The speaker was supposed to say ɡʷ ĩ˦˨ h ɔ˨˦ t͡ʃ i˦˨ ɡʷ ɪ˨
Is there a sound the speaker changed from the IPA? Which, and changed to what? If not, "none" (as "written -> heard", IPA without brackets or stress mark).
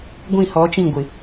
i˦˨ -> ĩ˦˨